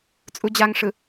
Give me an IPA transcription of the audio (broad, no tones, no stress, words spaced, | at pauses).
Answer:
t͡sʼud͡ʑaŋʂɯ